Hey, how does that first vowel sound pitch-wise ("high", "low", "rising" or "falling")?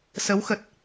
rising